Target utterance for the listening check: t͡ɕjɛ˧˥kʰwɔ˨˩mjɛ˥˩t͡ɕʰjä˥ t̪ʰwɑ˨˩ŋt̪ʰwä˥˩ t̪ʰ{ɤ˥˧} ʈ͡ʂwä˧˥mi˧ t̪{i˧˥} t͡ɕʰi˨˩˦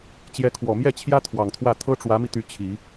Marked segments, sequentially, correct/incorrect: incorrect, incorrect

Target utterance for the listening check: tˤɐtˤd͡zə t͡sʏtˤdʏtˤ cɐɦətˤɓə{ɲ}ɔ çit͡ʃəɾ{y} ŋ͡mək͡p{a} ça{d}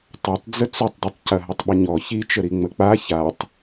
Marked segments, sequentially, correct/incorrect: correct, incorrect, correct, incorrect

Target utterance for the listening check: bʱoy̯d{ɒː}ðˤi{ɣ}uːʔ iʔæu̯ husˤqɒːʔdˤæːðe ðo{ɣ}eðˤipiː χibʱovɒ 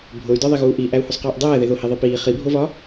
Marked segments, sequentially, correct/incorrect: incorrect, correct, incorrect

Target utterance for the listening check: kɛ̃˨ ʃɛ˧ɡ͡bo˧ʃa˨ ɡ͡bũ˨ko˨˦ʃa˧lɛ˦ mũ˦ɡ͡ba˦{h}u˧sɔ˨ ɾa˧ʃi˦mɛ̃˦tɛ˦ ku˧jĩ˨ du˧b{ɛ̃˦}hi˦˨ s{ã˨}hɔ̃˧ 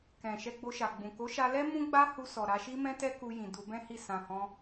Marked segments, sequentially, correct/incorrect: correct, correct, correct

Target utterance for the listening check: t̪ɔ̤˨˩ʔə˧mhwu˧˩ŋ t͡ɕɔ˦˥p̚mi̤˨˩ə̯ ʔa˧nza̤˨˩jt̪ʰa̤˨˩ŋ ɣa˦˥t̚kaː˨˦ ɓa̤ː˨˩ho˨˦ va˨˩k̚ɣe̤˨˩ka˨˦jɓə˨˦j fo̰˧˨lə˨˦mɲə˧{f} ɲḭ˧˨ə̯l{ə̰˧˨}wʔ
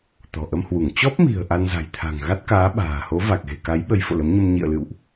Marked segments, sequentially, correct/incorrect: incorrect, incorrect

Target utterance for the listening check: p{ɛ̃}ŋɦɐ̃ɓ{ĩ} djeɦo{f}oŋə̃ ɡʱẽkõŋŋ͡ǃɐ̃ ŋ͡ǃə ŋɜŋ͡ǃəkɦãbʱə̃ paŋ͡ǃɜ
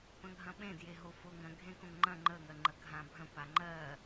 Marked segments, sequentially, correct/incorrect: incorrect, incorrect, correct

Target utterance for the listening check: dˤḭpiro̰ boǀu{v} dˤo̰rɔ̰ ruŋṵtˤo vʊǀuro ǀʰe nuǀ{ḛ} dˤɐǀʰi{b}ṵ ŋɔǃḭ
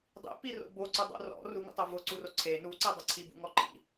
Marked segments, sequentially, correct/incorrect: incorrect, incorrect, correct

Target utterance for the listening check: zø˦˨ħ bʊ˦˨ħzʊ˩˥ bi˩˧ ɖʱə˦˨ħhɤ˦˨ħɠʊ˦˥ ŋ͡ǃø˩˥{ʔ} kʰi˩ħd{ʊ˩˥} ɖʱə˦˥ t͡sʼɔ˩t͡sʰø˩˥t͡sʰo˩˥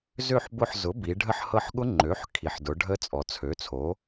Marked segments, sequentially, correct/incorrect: incorrect, incorrect

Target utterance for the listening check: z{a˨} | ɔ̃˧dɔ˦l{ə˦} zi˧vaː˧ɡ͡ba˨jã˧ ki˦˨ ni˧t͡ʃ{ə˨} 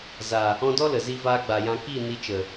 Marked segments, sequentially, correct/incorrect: correct, incorrect, correct

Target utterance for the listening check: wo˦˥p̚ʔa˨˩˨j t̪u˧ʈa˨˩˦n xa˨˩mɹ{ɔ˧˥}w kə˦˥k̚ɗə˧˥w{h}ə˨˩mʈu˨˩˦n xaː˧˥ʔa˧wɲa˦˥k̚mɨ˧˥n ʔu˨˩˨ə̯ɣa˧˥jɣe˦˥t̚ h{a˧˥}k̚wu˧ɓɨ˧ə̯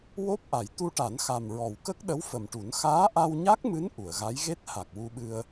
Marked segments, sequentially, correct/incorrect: incorrect, incorrect, incorrect

